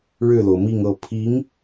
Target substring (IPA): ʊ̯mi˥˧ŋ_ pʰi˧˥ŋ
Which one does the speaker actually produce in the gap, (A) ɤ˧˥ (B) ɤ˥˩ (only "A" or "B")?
B